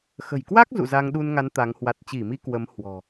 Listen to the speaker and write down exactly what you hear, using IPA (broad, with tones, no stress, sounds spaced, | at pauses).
x ə̤˨˩ j k w a˦˥ k̚ z ṵ˧˨ z a˧ ŋ ɗ u˧ n ŋ a˨˦ n t̪ a˨˦ ŋ h w a˨˩ t̚ t͡ɕ i˧˩ m i˧ k w ə˨˦ m h w ɔ̤˨˩